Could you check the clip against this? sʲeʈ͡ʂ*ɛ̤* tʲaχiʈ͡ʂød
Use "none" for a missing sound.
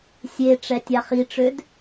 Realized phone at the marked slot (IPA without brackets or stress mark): ɛ